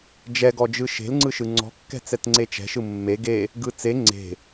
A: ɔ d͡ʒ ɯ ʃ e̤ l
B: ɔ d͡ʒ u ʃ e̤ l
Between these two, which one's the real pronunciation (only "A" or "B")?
A